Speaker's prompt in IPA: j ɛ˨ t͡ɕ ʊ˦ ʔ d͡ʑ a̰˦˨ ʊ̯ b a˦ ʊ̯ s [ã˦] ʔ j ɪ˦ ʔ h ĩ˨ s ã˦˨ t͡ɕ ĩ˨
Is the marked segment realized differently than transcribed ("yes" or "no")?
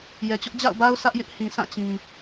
yes